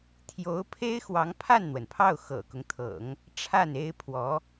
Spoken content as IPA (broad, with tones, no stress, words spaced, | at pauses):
t̪ʰjo˧˥ʊ̯pʰe˥ɪ̯xwɑ˧˥ŋ pʰa˥˩nn̪wə˩npʰɑ˥˩ʊ̯ xɤ̰˨˩kʊ˦ŋt̪ʰɤ̰˨˩˦ŋ | ʈ͡ʂʰa˥˩ne˥ɪ̯pʰwɔ˧˥